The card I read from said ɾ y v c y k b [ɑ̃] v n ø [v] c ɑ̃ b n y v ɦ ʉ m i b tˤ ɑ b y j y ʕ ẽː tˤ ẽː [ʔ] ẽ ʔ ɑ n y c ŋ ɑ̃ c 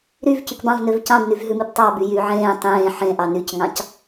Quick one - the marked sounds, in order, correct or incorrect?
correct, correct, incorrect

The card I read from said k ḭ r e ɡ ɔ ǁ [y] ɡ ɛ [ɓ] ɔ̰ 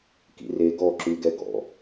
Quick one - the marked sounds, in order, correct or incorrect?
correct, incorrect

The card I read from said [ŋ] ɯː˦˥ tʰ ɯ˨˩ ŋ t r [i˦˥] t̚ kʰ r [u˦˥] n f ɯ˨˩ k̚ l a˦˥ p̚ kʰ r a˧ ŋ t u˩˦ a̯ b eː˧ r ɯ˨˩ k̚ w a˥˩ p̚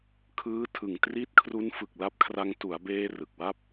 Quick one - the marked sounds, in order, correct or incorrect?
incorrect, correct, correct

